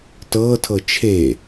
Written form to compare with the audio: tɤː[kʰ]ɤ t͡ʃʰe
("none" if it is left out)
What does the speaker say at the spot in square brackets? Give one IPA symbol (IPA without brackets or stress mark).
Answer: tʰ